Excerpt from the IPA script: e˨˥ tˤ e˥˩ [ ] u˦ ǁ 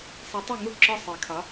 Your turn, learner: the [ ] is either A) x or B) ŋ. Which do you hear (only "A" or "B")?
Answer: B